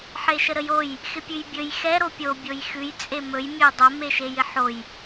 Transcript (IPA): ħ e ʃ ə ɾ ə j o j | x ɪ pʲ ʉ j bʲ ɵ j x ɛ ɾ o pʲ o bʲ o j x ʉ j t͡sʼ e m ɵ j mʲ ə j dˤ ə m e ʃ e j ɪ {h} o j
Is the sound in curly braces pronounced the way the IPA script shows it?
no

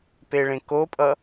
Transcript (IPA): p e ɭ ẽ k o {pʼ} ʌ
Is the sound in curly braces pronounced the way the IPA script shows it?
yes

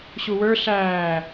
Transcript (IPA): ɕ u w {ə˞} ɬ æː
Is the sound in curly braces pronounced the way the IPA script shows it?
yes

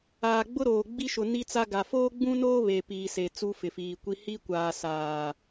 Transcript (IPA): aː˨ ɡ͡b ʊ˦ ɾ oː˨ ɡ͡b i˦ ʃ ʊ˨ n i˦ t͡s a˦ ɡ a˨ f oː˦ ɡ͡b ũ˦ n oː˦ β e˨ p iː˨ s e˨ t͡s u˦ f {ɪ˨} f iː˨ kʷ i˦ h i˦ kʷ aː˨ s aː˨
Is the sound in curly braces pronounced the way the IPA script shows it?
yes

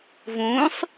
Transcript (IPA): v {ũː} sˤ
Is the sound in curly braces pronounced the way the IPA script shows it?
yes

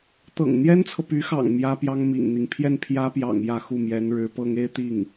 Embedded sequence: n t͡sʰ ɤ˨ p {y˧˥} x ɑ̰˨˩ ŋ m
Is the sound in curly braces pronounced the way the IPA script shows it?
yes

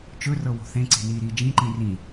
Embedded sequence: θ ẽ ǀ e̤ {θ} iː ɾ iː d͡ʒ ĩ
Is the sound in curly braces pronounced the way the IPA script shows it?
no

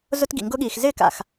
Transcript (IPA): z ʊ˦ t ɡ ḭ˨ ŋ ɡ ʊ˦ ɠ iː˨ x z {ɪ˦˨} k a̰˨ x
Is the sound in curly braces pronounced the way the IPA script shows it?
yes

